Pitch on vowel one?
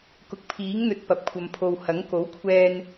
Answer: low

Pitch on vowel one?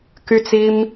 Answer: high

